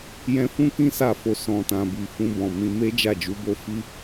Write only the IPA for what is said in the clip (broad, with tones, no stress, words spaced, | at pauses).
jɛ̃˧fũ˦ kĩ˦sa˧fo˨ sɔ̃˨tã˨bi˨ fũ˧bɔ̃˨mĩ˧ me˦ d͡ʒa˦˨d͡ʒu˨˦bo˦ fi˦